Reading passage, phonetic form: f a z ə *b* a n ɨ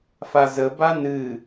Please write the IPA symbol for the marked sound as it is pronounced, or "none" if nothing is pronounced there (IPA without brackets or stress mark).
b